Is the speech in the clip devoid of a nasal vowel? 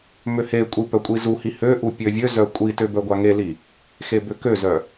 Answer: yes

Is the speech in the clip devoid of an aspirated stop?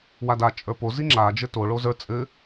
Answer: yes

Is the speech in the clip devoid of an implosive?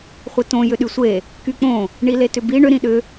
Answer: no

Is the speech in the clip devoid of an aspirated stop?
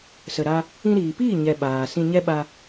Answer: yes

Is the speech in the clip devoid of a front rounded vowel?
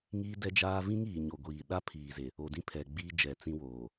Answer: yes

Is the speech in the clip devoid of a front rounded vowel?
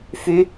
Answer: no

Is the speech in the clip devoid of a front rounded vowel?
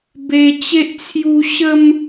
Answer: yes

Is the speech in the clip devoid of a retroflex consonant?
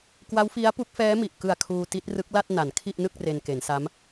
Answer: yes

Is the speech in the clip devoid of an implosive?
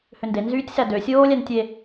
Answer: yes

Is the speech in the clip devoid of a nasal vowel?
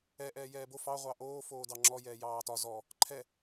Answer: yes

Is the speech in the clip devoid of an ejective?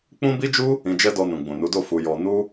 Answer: yes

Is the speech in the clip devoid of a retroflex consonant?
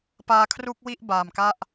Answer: yes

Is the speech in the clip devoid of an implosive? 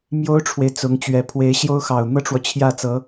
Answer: yes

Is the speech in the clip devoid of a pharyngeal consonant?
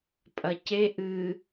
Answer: yes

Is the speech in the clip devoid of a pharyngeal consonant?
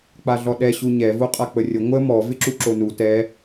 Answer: yes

